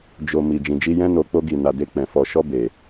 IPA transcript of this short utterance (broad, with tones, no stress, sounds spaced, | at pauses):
d͡ʒ o˧ m i˧ d͡ʒ ĩ˧ d͡ʒ i˦ j ɛ̃˦ n o˧ k͡p o˦ ɡ i˧ n a˧ d e˦ k͡p ɛ̃˧ f ɔ˧ ʃ ɔ˦ b e˧